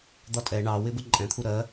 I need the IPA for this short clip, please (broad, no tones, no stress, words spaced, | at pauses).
d̪ɒtʼɛ ɳɑwɪ bəǃʼɛ̃t̪ʰu ɾɜ